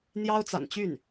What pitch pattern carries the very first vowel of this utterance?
high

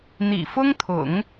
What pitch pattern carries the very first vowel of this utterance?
low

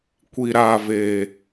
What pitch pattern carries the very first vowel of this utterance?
low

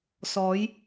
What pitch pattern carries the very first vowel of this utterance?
rising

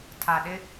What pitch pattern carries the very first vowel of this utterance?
low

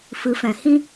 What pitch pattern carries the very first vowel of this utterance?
rising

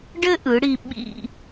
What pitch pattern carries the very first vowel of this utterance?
high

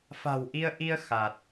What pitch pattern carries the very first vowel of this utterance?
low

